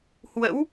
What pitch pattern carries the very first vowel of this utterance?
rising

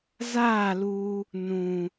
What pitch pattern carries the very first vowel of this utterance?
falling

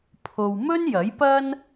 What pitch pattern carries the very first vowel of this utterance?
low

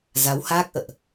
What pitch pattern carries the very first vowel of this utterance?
rising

